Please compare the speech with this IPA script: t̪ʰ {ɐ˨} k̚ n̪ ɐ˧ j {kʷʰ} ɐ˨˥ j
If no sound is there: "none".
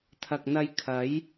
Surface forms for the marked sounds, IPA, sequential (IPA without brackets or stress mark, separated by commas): ɐ˨, kʰ